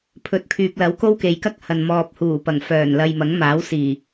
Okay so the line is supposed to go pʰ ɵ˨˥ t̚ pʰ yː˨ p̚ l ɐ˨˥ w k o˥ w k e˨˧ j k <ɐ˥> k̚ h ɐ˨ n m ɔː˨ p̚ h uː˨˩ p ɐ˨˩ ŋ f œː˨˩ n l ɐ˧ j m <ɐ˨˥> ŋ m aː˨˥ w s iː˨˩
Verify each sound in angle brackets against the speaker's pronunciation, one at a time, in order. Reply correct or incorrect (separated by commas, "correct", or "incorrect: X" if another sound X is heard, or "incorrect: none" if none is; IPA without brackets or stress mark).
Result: correct, correct